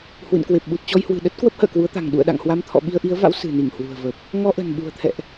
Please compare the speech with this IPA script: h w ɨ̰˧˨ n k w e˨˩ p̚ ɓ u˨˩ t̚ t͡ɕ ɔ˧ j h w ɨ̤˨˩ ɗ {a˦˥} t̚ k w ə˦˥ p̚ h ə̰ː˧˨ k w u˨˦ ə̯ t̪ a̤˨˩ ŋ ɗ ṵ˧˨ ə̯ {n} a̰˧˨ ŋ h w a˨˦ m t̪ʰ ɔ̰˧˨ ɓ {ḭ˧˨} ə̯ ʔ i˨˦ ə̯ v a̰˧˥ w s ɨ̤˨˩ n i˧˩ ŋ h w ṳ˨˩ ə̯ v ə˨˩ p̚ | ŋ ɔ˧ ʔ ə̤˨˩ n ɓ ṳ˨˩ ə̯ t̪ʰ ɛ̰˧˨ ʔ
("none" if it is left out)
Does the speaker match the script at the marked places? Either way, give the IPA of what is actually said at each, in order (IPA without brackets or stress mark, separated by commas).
ə˦˥, ɗ, i˧